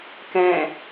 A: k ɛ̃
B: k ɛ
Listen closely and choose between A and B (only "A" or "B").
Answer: A